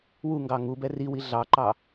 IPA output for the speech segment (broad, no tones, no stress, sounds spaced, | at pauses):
w u ŋ ɡ ɑ ŋ u b ɛ r i w i ɮ ɑ ǃ ɑ